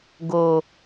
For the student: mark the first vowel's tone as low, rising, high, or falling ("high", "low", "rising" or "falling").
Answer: low